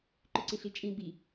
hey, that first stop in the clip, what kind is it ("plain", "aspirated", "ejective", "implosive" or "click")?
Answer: click